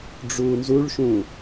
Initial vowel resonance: oral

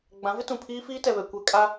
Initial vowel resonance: nasal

